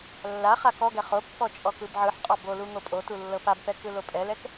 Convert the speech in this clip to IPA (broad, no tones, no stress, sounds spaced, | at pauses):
lː a χ a k ɔ ɡ ɛ χ o pː ɔ t͡ʃʼ ɔ k ɯ b ʕ ɯ ħ qʼ ɔ b o l u ŋ o pʼ o t u lː ɤ p a b p ɛ k ɯ l o pʼ ɛ l ɛ k